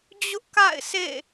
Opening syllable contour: high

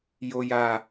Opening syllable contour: high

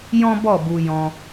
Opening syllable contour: high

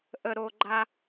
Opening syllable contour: low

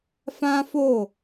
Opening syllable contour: high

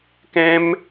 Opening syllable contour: high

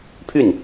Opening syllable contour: falling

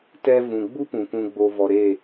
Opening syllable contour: high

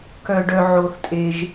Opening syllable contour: low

